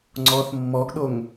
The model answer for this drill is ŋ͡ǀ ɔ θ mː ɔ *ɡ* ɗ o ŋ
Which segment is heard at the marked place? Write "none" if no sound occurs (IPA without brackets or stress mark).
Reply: ɡ